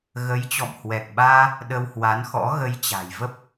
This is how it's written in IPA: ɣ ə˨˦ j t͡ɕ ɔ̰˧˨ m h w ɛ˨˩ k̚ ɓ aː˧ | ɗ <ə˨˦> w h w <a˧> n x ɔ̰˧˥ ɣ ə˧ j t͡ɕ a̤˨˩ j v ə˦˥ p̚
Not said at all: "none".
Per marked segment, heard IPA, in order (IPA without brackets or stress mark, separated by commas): ə˧, a˨˦